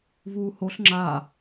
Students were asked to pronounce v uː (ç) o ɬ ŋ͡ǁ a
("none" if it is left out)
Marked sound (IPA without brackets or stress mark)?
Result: h